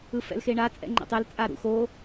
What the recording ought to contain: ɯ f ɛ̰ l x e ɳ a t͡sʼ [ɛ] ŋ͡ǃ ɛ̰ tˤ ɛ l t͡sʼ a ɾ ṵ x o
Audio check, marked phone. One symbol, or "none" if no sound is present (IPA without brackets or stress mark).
ɛ̰